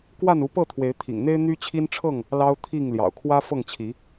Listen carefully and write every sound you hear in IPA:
k w a˥˨ n u˨˦ p ɤ˥˨ t̪ʰ w e˨˦ ɪ̯ t̪ʰ ḭ˨˩ ŋ n̪ e˦ ɪ̯ n̪ y˦ t͡ɕʰ i˦ n ʈ͡ʂʰ ɤ˥˨ ŋ | l ɑ˦ ʊ̯ t̪ʰ i˥˨ ŋ l j ɑ̰˨˩ ʊ̯ kʰ w ä˦ f ɤ˥˨ ŋ t͡ɕʰ i˨˦

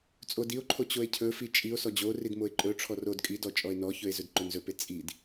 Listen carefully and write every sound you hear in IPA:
t͡sʼ o d i o̯ ǃʰ o t͡ɕ o e̯ cʰ ɵ f i t͡ʃʼ i o̯ s ɔ d͡ʑ o r i d m o e̯ ǃʼ ɵ ʈ͡ʂʰ ɔ r o d kʼ i d ɔ t͡ʃʼ ɔ e̯ n ɔ ç ɵ e̯ z ɵ d ǃ ɵ n z ɵ p e t͡sʼ i d

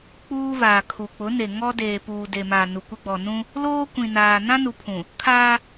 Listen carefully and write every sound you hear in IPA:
k͡p uː˦ v aː˨ kʰ u˨ k͡p ʊ˨˦ n e˨ ŋ ɔ˦ d eː˨ p uː˨ d e˨ m a˨ n u˨ kʷ ɪ˦ ɡ͡b ɔ˨ n ũ˦ | l oː˦ kʷ ĩ˨ n aː˨ n ã˦ n u˨ pʰ ũ˨ | kʰ aː˦

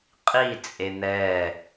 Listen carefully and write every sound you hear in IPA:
qʼ i t͡sʼ e n̪ ɛ

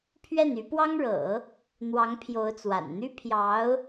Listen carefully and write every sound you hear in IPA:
pʰ ɥ ɛ˥˩ n y˧˥ p w ɑ˥ ŋ ɻ ɤ̰˨˩˦ | n̪ w ɑ˧˥ ŋ pʰ j o˧˥ ʊ̯ t͡s w a̰˨˩ n n̪ y˥ pʰ j ɑ˧˥ ʊ̯

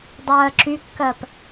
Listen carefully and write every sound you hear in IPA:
dˤ ɜː ǁ y kː ɜ p

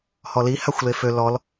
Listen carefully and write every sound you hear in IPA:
h ɔ l i h a xʷ l e f ø l ɔ l

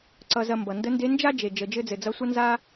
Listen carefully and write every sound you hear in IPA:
ǀ ʌ˧ z ɐ˧ m b ʌ˩ n d ə˧˥ n d e˧˥ n d͡ʒ a˥ d͡ʒ e˩ d͡ʒ ə˩ d͡ʒ ɘ˧ d͡z ɘ˩ d͡z ʌ˧˥ sʷ ɐ˥ n z a˥

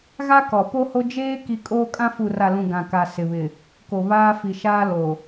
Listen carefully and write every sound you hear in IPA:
ɣ a˦ k ɔ˨ p o˦ h o˦ d͡ʒ eː˦ k i˦ kʼ oː˦ kʼ ã˦ f u˨ r a˨ l ũ˨ ɡ ã˨ k a˨ s ɪ˨ β ɪ˨ | k o˨ β aː˦ f i˨ ʃ aː˦ l o˨

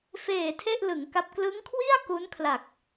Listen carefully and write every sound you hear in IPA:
f eː˨˩ tʰ e˥˩ ʔ l ɯ˩˦ ŋ k a˦˥ p̚ k l ɯ˦˥ ŋ kʰ w i˥˩ a̯ k u˦˥ n kʰ l a˨˩ k̚

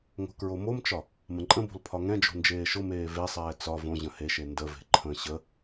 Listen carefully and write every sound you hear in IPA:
ŋ o̤ k ɹ o m o m t͡ʃ ɒ | m ə̃ ǃʼ ə̃ b o̤ l pʰ ɒ ŋ ɛ̃ d͡ʒ o̤ n d͡ʒ eː ʃ ʊ m eː v e sˤ ɛː t͡s ɒ v õ ʑ ə̃ h e ʃ e n d ə v e̤ ǃʰ ə̃ ɕ ə

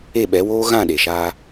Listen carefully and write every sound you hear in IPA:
e˦˨ ɓ ɛ˨˦ w oː˦ ɣ ã˦˨ ɗ e˨ ʃ aː˧

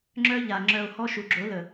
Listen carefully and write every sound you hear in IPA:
ŋ͡ǁ œ˦ ʎ a˨ ŋ͡ǁ œ˨ o̯ h ɔ˦ ʃ u˨ ɡ͡ǁ o˨˦ l ə˨

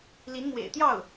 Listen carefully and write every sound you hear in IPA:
l i˧˥ n m w ḛ˨˩ ɪ̯ t̪ j ɑ˥˩ ʊ̯

